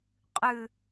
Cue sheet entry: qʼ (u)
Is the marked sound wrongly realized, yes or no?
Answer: yes